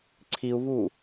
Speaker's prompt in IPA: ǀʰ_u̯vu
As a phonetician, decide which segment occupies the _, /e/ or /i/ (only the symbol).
i